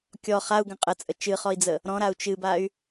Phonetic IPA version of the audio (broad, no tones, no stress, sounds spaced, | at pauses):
kʲ ɔ χ a u̯ ɡ ə̃ qʼ ə t͡sʼ ə t͡ʃ ɨ χ ɔ i̯ d͡z ə | ɾ ɔ̃ ɾ a u̯ t͡ʃ ɨ b a y̯